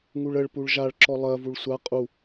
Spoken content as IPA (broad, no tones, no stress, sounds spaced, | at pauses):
ŋ u ɭ ə ɭ p u ɭ ʒ a ɭ ǁ ɔ lˠ ɜ v u ɭ sʷ a qʼ u